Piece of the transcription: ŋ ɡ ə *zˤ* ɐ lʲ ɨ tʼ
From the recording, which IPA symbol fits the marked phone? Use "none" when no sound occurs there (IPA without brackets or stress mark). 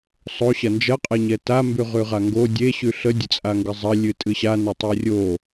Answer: zˤ